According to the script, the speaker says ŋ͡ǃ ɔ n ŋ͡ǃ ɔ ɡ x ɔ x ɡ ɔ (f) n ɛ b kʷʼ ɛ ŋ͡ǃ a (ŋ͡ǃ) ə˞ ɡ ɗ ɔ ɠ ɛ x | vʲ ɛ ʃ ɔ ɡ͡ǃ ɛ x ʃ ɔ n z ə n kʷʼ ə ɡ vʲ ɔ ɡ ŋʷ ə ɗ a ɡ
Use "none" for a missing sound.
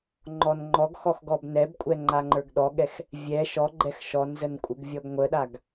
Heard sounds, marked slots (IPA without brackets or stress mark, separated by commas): b, ŋ͡ǃ